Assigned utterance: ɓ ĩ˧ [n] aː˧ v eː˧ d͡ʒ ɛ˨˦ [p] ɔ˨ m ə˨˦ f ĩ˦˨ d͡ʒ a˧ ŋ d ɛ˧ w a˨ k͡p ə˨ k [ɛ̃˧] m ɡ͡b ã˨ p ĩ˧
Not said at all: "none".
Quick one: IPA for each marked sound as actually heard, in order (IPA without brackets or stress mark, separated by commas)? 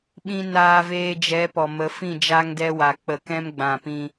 n, p, ɛ̃˧